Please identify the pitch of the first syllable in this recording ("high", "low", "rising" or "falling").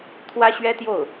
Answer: high